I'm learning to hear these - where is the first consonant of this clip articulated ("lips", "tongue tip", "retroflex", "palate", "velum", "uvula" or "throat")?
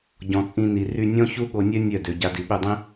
palate